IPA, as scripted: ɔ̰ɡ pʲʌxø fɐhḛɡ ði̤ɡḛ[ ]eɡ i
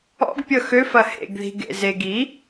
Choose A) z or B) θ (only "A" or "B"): A